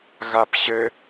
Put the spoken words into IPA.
ɣap ɕɘ

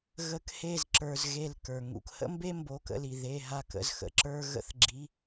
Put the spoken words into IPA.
ɣə˧k he˧˩zǁə˞˩z ɣe˧˩lkə˞˩ ŋṵ˩khə̰˧mbe˧ mbo˩˧˩kə̰˧˩li˩ ðe˩˧˩ɦa˧˩kə̰˩˧˩z xə̰˩ǁə˞˧ ɣə̰˧˩θɡ͡ǁi˩˧˩

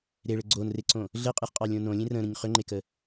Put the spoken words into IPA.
ɾeɭɘ ɡ͡ǀonreǀõ | ɮɘqʼɨχqʼɑlʲõ nõlʲẽ rə̃ɾə̃ɲ χøŋ͡ǃekə

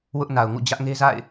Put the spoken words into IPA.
wʊ˦ʔna˨ʊ̯ŋṵ˦˨ d͡ʑä˦ʔŋe˦za̰˦˨ɪ̯

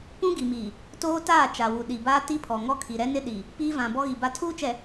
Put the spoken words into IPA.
pũ˦ ɡi˨miː˨ | toː˦taː˦˨ t͡ʃa˨wu˨ ɗi˨baː˦ ti˦pʰɔ˨ŋɔ˦kʰi˨ ɾɛ˦nɪ˦ɗi˨ | piː˦vã˨ bɔ˦ɣi˨ba˦ tʰuː˦t͡ʃɛ˨

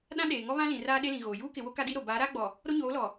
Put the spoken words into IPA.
ɗã˦ɗeː˨ŋɔ˦βã˦ lĩ˨raː˦ɗe˦lĩ˨ ɣoː˨ juː˦kɪ˨wo˦ ka˦di˦ɾo˨ baː˨˦ɾaː˦ɡ͡bɔ˨ | ɾo˦ɲoː˨˦lɔ˨

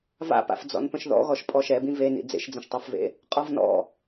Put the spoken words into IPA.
va̰pa̰f d͡zɔ̰npə̃ʃðɔ̰ ɣɔʃpʼɔʃɛbĩ venḭ d͡zḛʃd͡zə̃ʃtˤæfvḛ | qʼɔvnɔ̰

